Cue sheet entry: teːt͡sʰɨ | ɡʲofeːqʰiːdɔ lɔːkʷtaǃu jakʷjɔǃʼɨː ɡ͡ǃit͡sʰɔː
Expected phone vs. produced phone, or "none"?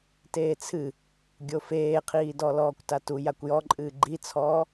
ǃ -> t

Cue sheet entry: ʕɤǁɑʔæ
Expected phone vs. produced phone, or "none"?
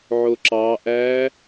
ɤ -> o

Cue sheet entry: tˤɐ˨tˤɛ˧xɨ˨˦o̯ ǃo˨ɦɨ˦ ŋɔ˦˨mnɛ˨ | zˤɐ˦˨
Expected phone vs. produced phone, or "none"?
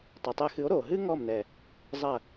ǃ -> ɾ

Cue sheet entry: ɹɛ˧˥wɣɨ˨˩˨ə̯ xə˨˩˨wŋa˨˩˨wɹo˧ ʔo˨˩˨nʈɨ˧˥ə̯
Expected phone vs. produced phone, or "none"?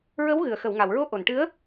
ɛ˧˥ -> ə˧˥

